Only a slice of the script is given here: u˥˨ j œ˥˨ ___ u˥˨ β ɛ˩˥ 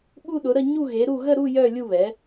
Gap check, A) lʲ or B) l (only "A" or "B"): A